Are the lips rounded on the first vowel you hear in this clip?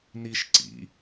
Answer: no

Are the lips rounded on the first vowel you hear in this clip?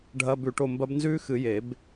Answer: no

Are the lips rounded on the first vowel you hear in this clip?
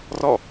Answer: yes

